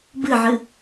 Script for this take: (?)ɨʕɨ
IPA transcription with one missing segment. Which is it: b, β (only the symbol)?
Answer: b